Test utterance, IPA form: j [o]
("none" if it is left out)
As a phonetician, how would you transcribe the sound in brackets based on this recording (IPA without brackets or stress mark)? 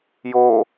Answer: o